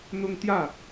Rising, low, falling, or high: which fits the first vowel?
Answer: high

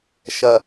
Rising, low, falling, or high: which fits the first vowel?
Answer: low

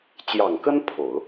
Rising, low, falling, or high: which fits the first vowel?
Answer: low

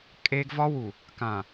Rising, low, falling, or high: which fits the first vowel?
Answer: high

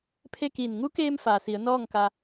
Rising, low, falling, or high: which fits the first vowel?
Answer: falling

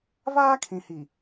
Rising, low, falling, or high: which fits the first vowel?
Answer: high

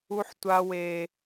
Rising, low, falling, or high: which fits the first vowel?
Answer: high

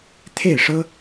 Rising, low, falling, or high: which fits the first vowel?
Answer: falling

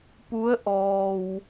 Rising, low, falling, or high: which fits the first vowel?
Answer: rising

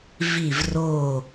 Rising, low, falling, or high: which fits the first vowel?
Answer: falling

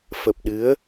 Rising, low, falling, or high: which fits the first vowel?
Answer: low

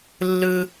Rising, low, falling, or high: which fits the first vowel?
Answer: high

